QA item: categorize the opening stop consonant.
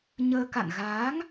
plain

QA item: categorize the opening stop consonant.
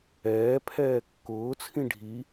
aspirated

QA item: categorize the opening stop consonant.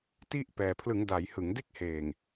plain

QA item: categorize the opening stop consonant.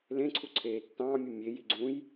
click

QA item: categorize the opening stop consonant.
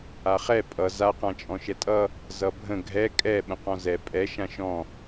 ejective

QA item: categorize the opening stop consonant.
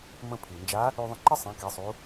aspirated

